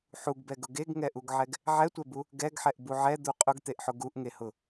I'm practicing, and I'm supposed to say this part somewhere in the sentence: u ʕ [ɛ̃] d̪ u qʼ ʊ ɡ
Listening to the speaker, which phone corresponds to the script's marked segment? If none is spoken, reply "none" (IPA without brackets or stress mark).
ɛ